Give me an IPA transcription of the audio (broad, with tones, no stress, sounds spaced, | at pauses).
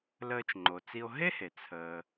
l əː˧ t͡ʃ ŋ͡ǃ o˩ t͡s i˧ o̯ ɦ e˥ h e˩ t͡sʰ əː˩